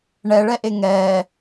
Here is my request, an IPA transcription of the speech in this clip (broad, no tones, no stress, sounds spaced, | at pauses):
ɳ ɛ ɭ ɛ ʔ e ŋ ɛ